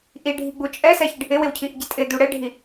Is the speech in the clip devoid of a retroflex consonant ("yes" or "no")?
no